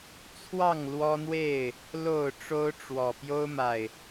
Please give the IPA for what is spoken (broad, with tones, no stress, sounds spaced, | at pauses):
t͡sʰ w ɑ˥˨ ŋ l w ɔ˦ n̪ w e˥˨ ɪ̯ | l o˥˨ ʊ̯ ʈ͡ʂ o˦ ʊ̯ ʈ͡ʂ w ɔ˨˩ p j o˦ ʊ̯ m a˨˩ ɪ̯